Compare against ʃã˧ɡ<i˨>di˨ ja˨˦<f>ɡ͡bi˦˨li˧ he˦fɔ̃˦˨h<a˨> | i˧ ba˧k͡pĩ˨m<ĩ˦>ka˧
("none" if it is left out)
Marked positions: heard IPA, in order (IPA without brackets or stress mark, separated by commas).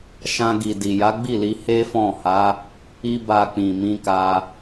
i˨, none, a˨˦, ĩ˧